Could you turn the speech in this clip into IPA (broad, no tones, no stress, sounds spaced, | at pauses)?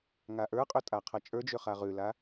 ŋ a ʔ ə˞ qʼ ø tʼ a qʰ ɐ t͡ʃʼ ə˞ d͡ʒ ø χ a ʁ ʉ l a